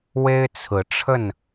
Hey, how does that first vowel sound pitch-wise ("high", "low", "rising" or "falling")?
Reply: high